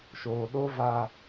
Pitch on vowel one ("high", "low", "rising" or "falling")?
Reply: low